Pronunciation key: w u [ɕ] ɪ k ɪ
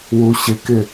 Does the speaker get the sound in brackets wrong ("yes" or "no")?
no